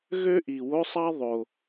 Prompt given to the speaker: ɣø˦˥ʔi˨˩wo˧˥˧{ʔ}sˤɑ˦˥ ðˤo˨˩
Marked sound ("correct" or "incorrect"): incorrect